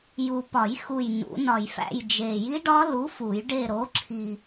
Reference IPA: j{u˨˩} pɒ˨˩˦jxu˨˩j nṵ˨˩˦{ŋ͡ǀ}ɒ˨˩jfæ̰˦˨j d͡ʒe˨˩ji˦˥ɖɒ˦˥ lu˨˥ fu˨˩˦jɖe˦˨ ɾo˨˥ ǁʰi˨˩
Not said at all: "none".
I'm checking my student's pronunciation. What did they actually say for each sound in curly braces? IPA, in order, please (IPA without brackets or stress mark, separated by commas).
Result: u˨˩, n